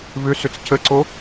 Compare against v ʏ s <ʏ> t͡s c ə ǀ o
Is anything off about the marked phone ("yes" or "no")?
no